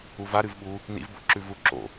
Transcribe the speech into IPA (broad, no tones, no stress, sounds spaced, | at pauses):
u v a ɾ ɨ v ɓ u | n ḭ v b o̰ ǁ ʉ v u ǁ o̰